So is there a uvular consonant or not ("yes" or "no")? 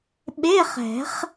yes